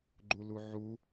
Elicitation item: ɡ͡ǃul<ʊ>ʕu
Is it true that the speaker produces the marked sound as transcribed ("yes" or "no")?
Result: no